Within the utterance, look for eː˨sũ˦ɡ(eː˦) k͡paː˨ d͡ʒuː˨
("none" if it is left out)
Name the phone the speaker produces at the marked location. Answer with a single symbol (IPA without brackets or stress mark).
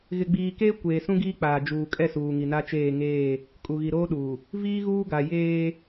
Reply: iː˦